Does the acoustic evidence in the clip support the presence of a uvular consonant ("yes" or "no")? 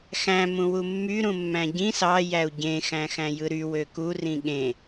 no